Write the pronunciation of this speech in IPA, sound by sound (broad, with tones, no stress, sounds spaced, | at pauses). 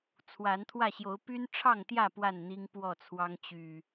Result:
t͡sʰ w a˨˦ n t̪ʰ w ä˥˨ ɕ j o˨˦ ʊ̯ p y˦ n ʈ͡ʂʰ ɑ˥˨ ŋ t̪ j ä˥˨ p w a˥˨ n n̪ i˦ ŋ p w ɔ˥˨ t͡sʰ w ɑ˦ ŋ t͡ɕ y˨˩